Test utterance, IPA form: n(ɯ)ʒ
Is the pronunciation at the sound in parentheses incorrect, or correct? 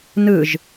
correct